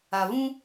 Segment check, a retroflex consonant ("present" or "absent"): absent